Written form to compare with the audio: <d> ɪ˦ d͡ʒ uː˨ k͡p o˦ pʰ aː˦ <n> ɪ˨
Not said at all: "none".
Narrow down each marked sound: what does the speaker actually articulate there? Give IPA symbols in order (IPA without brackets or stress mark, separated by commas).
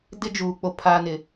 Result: d, n